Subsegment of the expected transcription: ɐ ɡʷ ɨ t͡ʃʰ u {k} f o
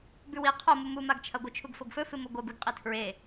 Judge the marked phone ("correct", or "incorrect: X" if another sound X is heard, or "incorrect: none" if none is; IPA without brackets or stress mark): incorrect: ɡ